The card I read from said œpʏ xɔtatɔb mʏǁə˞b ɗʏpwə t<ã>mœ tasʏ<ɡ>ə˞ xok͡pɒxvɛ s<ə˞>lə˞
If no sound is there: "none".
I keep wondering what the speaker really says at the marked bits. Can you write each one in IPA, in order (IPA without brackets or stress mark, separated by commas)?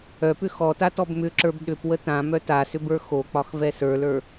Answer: ã, b, ə˞